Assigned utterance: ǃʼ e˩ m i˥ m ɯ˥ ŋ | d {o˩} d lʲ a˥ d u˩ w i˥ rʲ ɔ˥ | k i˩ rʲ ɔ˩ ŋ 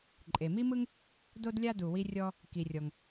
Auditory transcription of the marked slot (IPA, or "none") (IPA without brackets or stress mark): o˥